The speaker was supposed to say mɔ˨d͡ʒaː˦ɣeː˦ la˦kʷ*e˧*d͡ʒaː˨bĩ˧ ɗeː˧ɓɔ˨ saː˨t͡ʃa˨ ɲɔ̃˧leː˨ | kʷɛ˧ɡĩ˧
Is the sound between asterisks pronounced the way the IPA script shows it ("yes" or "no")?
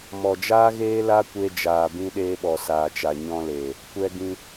yes